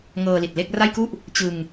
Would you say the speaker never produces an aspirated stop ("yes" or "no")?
yes